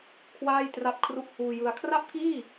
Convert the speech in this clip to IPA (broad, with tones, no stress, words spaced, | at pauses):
kʰwaː˥˩j tra˥˩p̚kʰru˥˩ʔ huː˧jɯ˧a̯ kʰra˥˩p̚kiː˥˩